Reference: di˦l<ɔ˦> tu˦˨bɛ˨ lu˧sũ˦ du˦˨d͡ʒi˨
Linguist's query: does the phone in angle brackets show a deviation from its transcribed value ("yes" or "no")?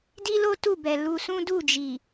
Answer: yes